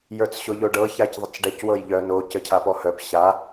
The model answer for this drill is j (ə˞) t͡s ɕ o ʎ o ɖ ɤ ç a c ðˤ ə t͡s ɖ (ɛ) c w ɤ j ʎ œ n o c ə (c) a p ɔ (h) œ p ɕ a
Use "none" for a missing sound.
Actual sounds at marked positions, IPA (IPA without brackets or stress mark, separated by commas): ə˞, ɛ, cʰ, h